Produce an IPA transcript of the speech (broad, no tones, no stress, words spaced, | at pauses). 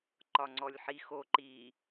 ǃɒŋ͡ǀɔlʲħi xo ǃi